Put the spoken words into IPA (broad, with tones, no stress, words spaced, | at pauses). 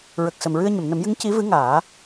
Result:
ɹə˨˩k̚sə˨˩m ɹɨ˧ə̯ɲə˨˩˨mnə˨˩˦mjɨ˧˥ŋ ci˧˥vɨ˧˥ŋaː˨˩˦